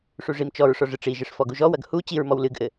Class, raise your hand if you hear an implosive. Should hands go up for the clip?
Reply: no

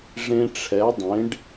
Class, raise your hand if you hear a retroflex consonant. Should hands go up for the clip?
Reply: yes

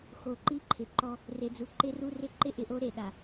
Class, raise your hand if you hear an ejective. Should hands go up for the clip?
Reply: no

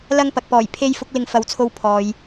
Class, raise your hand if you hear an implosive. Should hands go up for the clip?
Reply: no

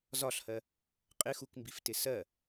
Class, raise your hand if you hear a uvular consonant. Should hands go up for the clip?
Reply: yes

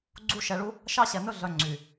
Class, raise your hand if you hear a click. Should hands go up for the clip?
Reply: yes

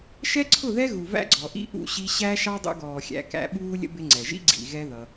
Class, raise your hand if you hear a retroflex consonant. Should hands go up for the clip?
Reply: no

